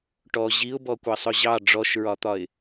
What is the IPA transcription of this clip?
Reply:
ʈɔ ʑiʊ̯bɔ kʷɜsˤʊʑɑ ɖ͡ʐɔʃɹɒt̪ɒɪ̯

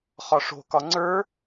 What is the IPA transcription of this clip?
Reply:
χɒʂo̤kɒ ŋ͡ǀə˞

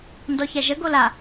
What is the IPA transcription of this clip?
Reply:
ndɔçæʒə ɡola

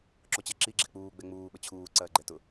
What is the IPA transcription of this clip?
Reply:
ǁot͡ɕɛǁi ɡ͡ǁɛk͡puː ɡ͡bɛŋ͡muː ɓət͡ɕʰuː ǀɐːɡ͡ǃɛtʊ

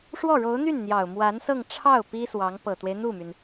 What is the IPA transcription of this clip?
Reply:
ʂwɔ˥˩ɻo˧˥ʊ̯n̪y˥˩n n̪jɑ˨˩ʊ̯mwa˧˥nsɤ˥˧ŋ ʈ͡ʂʰɑ˥˩ʊ̯ pi˥swɑ˧˥ŋ pɤ˨˩t̪we˦ɪ̯n̪u˥˩my˩n

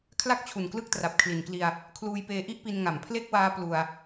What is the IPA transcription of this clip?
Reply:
kʰla˥˩k̚t͡ɕʰu˨˩nklɯ˦˥k̚tra˨˩p̚ kʰli˨˩nkli˧a̯ | kʰluː˧jpeː˧ʔi˥˩ʔpi˧n ŋa˨˩mpʰle˥˩k̚waː˦˥ plu˧a̯

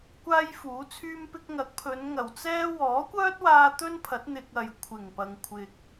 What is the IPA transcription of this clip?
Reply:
kʷaː˥jfuː˨˥t͡sʰyː˥mpɪ˥k̚ ŋɐ˨˥k̚pʰɵ˨˧n ŋɐ˨˩wt͡sɛː˥ wɔː˨˥kʷœː˥t̚waː˧ t̪ɵ˥npʰɐ˨˥t̚ n̪ɪ˧k̚ ɐ˨jkʷʰɪ˨˩ŋpɐ˨ŋ kʷʰɪ˨k̚

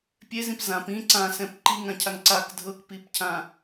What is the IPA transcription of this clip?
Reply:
pʲezĩp zãp ĩ ǀãsɛ̃p ǃiŋãcʰaŋ ǀak dʱɤkpipcʰã

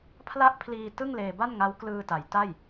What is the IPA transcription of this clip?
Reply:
pʰla˥˩ʔ pʰliː˧ tɯ˥˩ŋleː˧ba˥˩nŋa˦˥w klɯː˧ta˩˦jta˥˩j

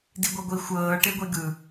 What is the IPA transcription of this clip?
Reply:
diɡʷɤɡʷi xʷɤː ʈeɡʷeɡɯ

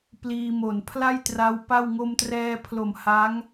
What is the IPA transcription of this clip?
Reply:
pliː˧mo˨˩n pʰla˥˩j tra˦˥wpa˥˩w ŋo˧mtrɛː˧pʰlo˨˩m ha˦˥ŋ

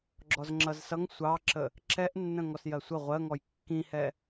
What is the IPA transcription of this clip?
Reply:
ɡ͡ǁɔzŋ͡ǁʌzsʌŋ sʷɑǁə | ǁɛʔnːə̃ ŋɔsjɜsʷə ʁʷɜŋɔj kːĩhɛ

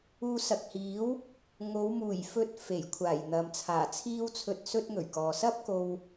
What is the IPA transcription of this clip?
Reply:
uː˧sɐ˨k̚hiː˨˥w | ŋo˨˧wmuː˨˩jfɵ˧t̚ fe˨˩jkʷʰaː˨˩j n̪ɐ˨mt͡sʰaː˨˩ t͡sʰiː˥wt͡sʰɵ˧t̚ sɵ˥t̚ŋɵ˨˩ɥkɔː˨ sɐ˥p̚ ko˧w

